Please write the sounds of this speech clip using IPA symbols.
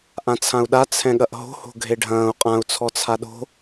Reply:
ʔ ã t͡sʰ ã u̯ ɗ a t͡sʰ ɛ̃ ɠ ɐ ʔ ɦ o̤ h o̤ ɡʱ e ɖʱ ɐ̃ː u̯ qʼ ã u̯ t͡sʰ ɔ t͡sʰ a ɗ o̤

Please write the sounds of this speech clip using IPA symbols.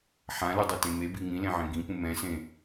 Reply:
ħ ã l u dˤ u t ẽ m e b i ŋ ĩ l ẽ ʕ ẽ ɡ ĩ p ũ m ɛ̃ s ẽ

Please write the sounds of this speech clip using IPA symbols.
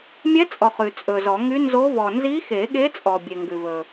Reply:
mʲ ɛ˧˥ t͡sʼ ɔ˨ χ ʉ˨ t͡sʼ ɵ˨ z ɔ˨˩˦ ŋ y˧˥ n z o˧˥ v ɔ˨ n z i˧˥ x e˨˩˦ ɠ e˧˥ t͡sʼ ɔ˨ bʲ e˨ ŋ ɡ ʉ˨ v ɵ˨

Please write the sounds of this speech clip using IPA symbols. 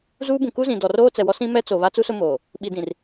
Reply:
z uː˦ b ũ˨ k u˦ z ĩ˨ d ɔ˨ r oː˦ t͡s ɛ˨ w ɔ˦ s ĩ˦ m ɛ˦ t͡s o˨ β a˦ t͡s u˦ s ʊ˦ m oː˨ | ɓ i˨ d ĩ˨ r

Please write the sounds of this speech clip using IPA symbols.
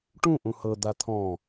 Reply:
ʈ ũ ʔ ũ h ɤ d̪ a t̪ʰ ɔ̃

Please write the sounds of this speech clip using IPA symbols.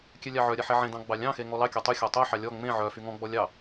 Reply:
kʲ ɛ lʲ ɑ ʕ œ ɾʲ ɛ ħ ɛ ʕ ẽ d ɑ̃ ɡ͡b ɑ lʲ ɑ̃ x e ŋ ɔ l ɑ kʲ ɔ tˤ y xʲ ɔ tˤ œ ħ ɑ lʲ ɔ ŋ͡m ẽ ʕ œ f y ŋ ɔ̃ ɡ͡b ɔ lʲ ɑ

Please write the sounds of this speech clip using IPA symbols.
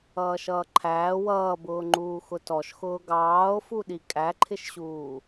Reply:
ʌː ʃ ʌː ǃʰ æː w ʌː b ʊː ŋ͡ǃ uː x ʊ t ɔ ʃ x ʊː ɡ ɑː o̯ f u ɗ i kʼ æ ǃʰ ɪ ʃ ɕ uː

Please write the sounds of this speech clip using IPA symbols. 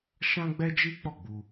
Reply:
ʃ ã˦ ɡ͡b ɛ˦ d͡ʒ i˦ k͡p ɔ˦˨ ɡ͡b u˧

